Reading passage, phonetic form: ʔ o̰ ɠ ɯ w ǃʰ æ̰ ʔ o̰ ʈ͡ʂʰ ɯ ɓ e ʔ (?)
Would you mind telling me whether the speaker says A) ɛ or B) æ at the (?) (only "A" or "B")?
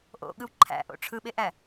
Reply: B